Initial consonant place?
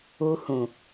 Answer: glottal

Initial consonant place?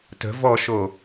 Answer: alveolar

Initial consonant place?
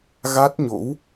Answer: velar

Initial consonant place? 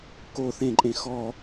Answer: velar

